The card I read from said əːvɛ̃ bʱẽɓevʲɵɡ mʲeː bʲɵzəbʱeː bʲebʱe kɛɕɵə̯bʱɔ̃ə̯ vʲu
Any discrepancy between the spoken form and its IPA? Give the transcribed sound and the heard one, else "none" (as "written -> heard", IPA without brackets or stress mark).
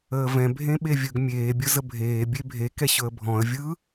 u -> ɯ